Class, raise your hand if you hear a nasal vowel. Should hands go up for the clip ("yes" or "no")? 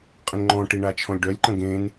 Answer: yes